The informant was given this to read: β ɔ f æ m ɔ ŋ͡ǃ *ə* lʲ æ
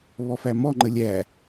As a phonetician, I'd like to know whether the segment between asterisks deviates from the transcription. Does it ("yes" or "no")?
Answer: no